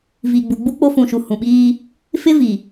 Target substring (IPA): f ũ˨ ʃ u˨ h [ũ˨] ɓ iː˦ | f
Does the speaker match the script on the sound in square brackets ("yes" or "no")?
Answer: yes